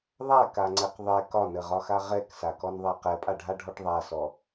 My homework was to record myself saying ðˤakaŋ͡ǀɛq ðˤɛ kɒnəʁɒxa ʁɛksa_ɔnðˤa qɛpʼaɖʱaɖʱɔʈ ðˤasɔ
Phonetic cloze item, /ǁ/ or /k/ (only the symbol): k